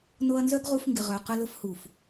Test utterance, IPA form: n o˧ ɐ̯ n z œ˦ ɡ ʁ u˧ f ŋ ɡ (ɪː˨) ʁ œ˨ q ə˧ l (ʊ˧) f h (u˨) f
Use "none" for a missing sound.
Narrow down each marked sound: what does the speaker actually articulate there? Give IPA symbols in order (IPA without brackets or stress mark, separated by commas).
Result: ɪ˨, ʊ˧, u˨